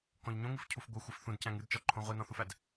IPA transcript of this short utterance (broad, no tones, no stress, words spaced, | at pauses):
kɔ̃ʎɲõŋɨfcʰuf ɡʷɘ xʷɘfθũdcæ̃ŋ ɨdt͡ʃɔǃʰõ ʁʷinɔ̃θufæd